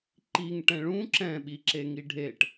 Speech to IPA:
ǃ i ŋ ʈ ɛ̃ ɭ ũ ǁ ɛ̃ ɓ i ǁ e ŋ i ɖʱ e ʈ

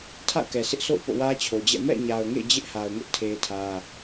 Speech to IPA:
tʰ a̰˦˨ ʊ̯ k ɛ˨ sʰ ɪ˦ ʔ sʰ o̰˦˨ ʊ̯ p o̰˦˨ w ä˦ t͡ɕʰ o˨ d͡ʑ ɛ̰˦˨ m ɛ̰˦˨ ɲ a˨ ʊ̯ ŋ ḛ˦˨ d͡ʑ ɪ˦ ʔ h a˨ ʊ̯ ŋ ʊ˦ ʔ tʰ e˦ ɪ̯ tʰ ä˦

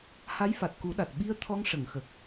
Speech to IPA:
h a˧˥ j f a˨˩ t̚ k u˨˩˦ ɗ a˨˩ t̚ ɓ i˧ ə̯ t̪ʰ ɔ˧ ŋ ʂ ə˨˩˨ ŋ x ə˨˩ k̚

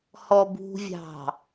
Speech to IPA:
h ɔ b ṳ vʲ ɑ̤

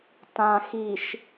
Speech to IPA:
t ã˨ x i˨ ʃ

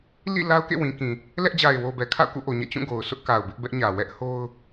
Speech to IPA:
l ḭ˦˨ l a˦ ʊ̯ k ḛ˦˨ w ĩ˨ k ĩ˨ | l ɛ˦ ʔ d͡ʑ a˨ ɪ̯ w o˨ b ɛ˨ kʰ a̰˦˨ ʊ̯ k ṵ˦˨ ʔ o˨ ɲ ɛ̰˦˨ t͡ɕ ũ˦˨ ɡ o˨ ʊ̯ s ʊ˦ ʔ k a˨ ʊ̯ b ɪ˦ ʔ b ɛ˦ ʔ ɲ ä˨ w ɛ˦ ʔ h o˦ ʊ̯

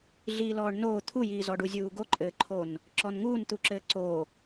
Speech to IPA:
ɮ iː l ɔː ɳ n oː t̪ʰ u j iː z ɔ ɖ u zʲ uː ɡ o ǃʼ ɘː ǃʰ o n | ǁ ɔ n ŋ uː n t̪ u ǁ ɘː ǀ o

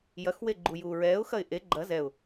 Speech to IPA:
j ɐ x w e ɡ͡ǃ u j uː ɹ ɛː ʊ̯ x ɐ ɪ̯ ʔ e ɡ͡ǃ ɐ z ɛ ʊ̯

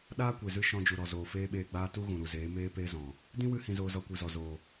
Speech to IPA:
ɗ aː˦ kʷ e˨ z ɨ˧ ʃ ɔ̃˧ d͡ʒ u˨ ɾ ɔ˨ z oː˨ f eː˦ ɓ eː˧ ɡ͡b aː˦ t u˦ ɣ ũ˨ ɾ u˨ z eː˨˦ m eː˦ p e˦ z ɔ̃˨ | d ĩ˦ w ɨ˧ h ĩ˨ z oː˨ z ɔ˨ kʷ ɨ˨ z ɔ˨ z oː˨

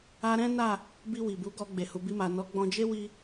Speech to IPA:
a˧ ɾ ɛ̃˦ n a˦˨ | b i˧ w i˨ b u˨˦ ɡ ɔ˧ ɡ͡b e˨ h u˨ b i˧ m a˨ n ɔ˨˦ ɡ͡b ɔ̃˧ d͡ʒ e˦ w i˧

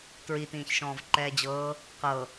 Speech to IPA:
t ɹ i t ĩː ç ʃ ɔ̃ː v ǃ ɛː d͡ʑ ɤː | q ɤ

